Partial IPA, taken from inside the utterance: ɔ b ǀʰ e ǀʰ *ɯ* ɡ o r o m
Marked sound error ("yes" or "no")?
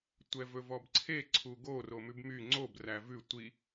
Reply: yes